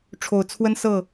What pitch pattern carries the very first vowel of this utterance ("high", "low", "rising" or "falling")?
low